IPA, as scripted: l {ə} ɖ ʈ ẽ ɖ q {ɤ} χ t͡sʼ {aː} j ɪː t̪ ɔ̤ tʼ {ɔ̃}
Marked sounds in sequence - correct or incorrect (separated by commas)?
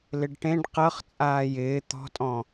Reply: incorrect, correct, correct, correct